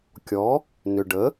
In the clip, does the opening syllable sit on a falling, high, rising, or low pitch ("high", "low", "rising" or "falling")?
rising